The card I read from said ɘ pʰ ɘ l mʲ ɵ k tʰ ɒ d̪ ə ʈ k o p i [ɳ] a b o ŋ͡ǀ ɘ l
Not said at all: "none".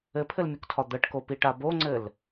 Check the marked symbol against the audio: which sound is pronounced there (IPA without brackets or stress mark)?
ʈ